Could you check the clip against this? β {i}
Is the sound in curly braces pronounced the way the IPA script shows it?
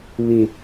yes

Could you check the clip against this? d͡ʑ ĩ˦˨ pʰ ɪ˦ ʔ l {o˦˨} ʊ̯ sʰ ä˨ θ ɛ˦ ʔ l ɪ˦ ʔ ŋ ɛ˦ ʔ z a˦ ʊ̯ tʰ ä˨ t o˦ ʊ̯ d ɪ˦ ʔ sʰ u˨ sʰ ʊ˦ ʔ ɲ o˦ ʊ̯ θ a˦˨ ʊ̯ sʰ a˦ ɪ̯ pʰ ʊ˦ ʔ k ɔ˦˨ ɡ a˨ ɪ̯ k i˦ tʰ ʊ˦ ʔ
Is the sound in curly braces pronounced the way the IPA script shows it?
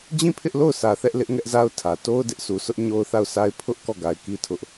yes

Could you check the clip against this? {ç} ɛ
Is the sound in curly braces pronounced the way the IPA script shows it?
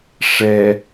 no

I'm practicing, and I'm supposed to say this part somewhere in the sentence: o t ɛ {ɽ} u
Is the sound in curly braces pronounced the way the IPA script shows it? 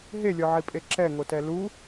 no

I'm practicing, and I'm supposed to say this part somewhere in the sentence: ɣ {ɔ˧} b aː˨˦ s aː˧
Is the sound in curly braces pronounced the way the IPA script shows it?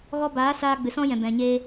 yes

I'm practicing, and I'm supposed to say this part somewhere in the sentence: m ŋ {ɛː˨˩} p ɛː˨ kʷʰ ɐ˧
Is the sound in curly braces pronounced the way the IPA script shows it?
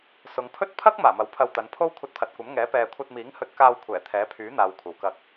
no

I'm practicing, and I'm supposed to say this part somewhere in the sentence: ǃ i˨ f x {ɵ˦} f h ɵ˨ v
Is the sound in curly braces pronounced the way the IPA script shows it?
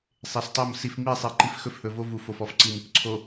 yes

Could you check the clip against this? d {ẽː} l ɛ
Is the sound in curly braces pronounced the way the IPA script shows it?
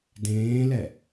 yes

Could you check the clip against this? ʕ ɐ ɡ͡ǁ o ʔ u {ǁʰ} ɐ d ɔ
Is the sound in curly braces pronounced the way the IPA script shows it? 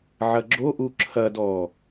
yes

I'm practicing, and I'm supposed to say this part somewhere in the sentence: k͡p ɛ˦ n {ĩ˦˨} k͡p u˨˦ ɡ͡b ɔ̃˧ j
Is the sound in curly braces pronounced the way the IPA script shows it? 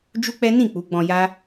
yes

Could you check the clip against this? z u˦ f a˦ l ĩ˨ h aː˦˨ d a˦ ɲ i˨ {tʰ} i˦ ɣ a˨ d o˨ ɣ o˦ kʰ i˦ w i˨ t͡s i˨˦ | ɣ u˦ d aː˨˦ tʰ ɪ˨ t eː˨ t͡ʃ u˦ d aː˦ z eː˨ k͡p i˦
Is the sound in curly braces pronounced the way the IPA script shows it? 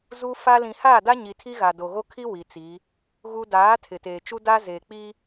yes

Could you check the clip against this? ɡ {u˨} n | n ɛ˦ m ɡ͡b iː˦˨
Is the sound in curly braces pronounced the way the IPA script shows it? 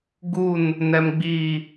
no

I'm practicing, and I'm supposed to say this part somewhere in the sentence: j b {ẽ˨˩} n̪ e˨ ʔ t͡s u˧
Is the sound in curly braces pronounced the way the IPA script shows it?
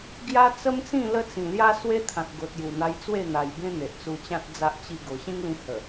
no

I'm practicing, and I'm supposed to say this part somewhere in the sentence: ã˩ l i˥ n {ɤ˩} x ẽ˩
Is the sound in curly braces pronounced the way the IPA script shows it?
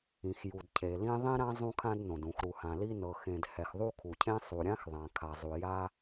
yes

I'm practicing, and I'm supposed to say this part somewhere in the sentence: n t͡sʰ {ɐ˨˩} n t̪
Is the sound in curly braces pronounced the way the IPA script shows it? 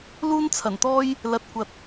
yes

